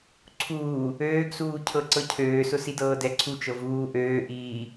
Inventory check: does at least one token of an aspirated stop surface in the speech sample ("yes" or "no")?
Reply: yes